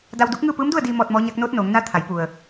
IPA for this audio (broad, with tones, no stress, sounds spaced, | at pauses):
d a˧ w d u˧˥ k̚ ŋ ɯː˥˨ p ɯː˧˥ m d u˥˨ ə̯ d iː˧ m ɔː˧ t̚ m ɔː˧˥ ɲ a˧˥ k̚ n oː˧˥ t̚ n oː˩˧ ŋ n a˧˥ t̪ʰ a˩˧ j p u˩ ə̯